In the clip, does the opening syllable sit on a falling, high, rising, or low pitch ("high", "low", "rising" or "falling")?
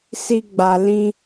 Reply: high